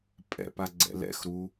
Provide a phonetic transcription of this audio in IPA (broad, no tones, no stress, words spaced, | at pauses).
pʼɛ̰paɡ͡ǀɛ̰ lɛ̰xɾu